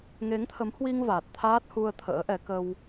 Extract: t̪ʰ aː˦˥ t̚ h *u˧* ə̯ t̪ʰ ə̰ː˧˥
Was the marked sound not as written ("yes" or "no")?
no